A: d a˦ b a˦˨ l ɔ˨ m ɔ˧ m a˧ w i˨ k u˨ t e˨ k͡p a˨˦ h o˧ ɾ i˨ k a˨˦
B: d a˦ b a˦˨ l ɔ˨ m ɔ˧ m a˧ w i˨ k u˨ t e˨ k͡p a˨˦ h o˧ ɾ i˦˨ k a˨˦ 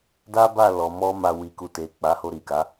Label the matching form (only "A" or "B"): A